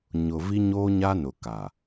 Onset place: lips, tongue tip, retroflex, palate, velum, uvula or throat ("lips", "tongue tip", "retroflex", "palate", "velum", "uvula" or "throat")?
palate